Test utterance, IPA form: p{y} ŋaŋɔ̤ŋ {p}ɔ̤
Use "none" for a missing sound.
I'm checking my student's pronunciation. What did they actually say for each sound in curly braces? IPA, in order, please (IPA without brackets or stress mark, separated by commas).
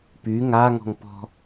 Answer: y, p